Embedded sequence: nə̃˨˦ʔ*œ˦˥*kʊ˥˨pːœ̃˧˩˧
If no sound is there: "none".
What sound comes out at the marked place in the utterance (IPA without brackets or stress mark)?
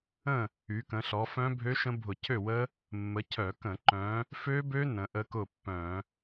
ə˦˥